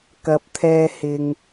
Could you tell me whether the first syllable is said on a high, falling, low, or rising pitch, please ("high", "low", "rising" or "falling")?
low